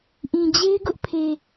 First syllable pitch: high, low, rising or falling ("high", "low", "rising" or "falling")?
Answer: low